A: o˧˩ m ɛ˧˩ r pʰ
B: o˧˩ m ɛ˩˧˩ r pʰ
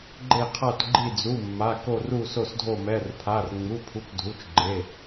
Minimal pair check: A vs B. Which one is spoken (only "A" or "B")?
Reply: B